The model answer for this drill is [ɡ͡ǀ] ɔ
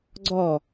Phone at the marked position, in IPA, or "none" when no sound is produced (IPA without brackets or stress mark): ɡ͡ǀ